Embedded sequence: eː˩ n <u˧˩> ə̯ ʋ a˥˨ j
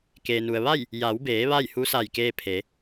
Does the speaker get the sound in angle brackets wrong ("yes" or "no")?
yes